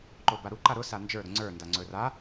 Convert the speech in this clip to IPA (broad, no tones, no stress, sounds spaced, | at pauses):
ǃ o b a ɾ u ǃ a ɾ ʊ s a n d͡ʒ ə˞ ɾ ʊ ŋ͡ǀ ə˞ n d a ŋ͡ǀ ɵ r a